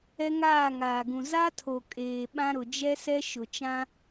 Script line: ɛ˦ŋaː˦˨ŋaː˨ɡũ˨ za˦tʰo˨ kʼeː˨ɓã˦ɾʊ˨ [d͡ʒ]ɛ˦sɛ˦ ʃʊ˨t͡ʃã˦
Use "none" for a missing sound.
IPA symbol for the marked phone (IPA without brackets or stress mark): d͡ʒ